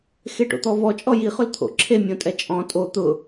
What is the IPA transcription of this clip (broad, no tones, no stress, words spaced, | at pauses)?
xeʈo̰t̪ɔvɔ t͡ʃʼɔji χʊlt̪ʰo̰ǁʰe mʲõtʼɛt͡ʃʼɔ̃ tʼo t̪ʊ